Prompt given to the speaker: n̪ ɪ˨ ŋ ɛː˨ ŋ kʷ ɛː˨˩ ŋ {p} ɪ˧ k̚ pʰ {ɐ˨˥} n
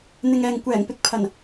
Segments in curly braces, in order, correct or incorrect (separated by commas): correct, incorrect